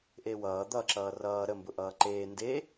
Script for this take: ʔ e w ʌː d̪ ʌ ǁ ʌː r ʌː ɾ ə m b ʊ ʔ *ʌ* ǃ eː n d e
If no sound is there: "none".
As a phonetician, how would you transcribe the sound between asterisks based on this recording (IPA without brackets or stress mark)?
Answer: ʌː